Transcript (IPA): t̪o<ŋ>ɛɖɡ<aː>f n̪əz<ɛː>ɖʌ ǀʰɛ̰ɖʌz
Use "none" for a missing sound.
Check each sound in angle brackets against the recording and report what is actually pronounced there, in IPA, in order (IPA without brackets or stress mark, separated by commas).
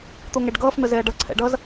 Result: ŋ, ʌː, ɛː